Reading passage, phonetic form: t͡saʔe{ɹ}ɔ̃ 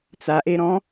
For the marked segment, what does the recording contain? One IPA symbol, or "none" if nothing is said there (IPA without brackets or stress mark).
ɾ